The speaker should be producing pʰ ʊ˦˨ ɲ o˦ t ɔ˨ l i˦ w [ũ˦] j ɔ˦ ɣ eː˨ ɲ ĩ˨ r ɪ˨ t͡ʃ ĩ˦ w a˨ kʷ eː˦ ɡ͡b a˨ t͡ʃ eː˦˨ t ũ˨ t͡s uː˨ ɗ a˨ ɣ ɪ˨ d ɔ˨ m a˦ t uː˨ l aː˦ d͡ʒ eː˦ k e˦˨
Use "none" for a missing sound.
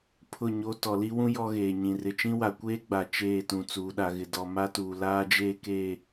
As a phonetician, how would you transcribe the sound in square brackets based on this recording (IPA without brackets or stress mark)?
ũ˦